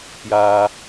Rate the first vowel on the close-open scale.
open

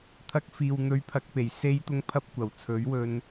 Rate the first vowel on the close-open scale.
open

